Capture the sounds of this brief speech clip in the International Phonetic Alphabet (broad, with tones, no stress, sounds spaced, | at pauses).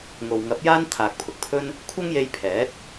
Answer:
ŋ o˨ w ŋ ɐ˨˥ p̚ j aː˥ n t̪ʰ aː˨ k̚ pʰ ʊ˨ k̚ pʰ ɵ˥ n | kʷʰ ɐ˥ ŋ j e˧ j pʰ ɛː˨˥ t̚